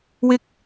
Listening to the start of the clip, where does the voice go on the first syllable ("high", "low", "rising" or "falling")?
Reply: high